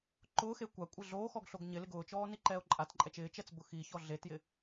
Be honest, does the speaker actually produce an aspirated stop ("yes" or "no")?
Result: no